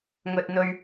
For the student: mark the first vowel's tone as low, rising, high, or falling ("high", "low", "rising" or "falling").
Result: low